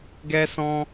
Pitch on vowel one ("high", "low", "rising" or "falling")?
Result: high